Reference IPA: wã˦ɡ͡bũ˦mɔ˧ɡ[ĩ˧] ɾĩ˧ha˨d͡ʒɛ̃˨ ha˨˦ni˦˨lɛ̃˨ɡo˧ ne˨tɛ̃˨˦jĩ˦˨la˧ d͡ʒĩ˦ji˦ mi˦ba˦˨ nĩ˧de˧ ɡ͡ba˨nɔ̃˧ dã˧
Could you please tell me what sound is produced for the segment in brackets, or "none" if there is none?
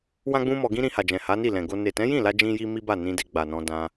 ĩ˦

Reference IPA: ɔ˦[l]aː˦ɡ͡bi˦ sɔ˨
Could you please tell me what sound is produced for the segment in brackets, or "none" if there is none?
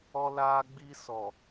l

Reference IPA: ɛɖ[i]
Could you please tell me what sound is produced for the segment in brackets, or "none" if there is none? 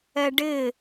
ɪ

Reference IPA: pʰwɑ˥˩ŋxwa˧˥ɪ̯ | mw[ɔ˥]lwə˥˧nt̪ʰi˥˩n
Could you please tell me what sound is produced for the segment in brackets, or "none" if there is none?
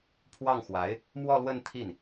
ɔ˥˧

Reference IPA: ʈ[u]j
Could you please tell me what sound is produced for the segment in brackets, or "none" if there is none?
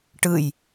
ɯ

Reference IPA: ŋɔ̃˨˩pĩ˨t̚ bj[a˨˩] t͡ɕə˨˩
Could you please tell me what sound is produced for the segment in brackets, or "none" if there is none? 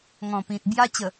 a˧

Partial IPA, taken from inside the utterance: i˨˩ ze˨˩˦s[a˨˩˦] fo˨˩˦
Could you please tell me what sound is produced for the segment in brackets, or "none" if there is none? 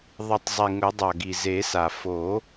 a˨˩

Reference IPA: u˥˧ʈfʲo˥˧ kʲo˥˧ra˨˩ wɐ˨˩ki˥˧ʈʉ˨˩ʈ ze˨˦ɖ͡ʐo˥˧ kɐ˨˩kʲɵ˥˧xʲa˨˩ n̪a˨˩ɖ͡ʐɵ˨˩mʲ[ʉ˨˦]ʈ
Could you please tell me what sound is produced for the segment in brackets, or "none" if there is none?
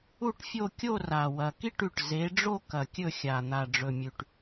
ʉ˨˩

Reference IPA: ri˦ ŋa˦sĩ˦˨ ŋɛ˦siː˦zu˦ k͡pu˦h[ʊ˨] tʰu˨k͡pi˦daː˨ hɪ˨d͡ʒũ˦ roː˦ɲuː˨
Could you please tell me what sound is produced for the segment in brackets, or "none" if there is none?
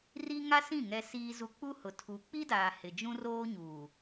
ʊ˨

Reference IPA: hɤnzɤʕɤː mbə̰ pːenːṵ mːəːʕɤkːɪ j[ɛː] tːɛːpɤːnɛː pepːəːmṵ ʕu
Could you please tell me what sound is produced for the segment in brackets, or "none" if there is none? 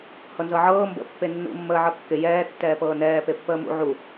ɛː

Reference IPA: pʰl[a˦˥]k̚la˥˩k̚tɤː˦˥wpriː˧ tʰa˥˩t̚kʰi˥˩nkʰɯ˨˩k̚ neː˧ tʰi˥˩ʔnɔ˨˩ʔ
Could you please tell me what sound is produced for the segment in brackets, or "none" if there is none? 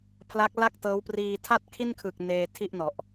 a˦˥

